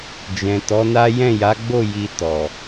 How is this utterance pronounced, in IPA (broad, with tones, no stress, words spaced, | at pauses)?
d͡ʒɛ̃˨ tɔ˨˦na˦ jɛ̃˦˨ja˨˦ɡ͡bo˦˨ ji˧ tɔ˨